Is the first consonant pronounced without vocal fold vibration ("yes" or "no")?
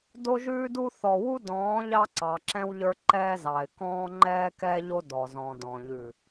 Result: no